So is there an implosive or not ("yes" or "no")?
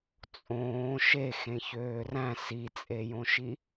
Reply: no